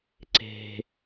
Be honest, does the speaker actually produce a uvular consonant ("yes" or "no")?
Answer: no